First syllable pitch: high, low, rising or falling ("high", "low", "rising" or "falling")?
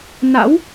rising